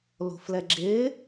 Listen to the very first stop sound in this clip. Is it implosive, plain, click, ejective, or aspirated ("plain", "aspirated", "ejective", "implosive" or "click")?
click